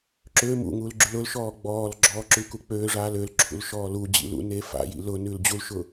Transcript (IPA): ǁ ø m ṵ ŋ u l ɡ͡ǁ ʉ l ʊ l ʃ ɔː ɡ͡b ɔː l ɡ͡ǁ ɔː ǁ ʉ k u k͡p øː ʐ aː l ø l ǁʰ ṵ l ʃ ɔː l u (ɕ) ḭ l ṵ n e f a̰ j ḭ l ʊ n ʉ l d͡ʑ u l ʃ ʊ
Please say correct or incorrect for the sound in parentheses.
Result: incorrect: d͡ʑ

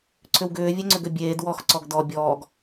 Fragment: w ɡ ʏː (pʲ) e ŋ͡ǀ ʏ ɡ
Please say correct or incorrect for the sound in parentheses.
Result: incorrect: vʲ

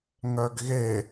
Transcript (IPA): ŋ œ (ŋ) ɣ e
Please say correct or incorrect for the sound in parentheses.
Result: incorrect: ɡ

